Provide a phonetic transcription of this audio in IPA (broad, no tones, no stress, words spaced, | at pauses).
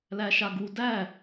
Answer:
læʃaɡu dæ